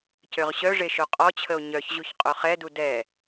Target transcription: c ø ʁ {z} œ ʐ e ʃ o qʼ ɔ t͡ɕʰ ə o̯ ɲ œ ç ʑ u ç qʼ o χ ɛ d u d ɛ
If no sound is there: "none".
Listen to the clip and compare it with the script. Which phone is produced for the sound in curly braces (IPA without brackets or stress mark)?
ɕ